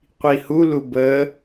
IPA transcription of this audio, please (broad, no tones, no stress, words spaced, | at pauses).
qʷihulu bə